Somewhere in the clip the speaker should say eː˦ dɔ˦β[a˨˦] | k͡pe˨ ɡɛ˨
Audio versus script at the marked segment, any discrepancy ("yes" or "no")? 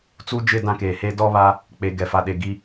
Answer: yes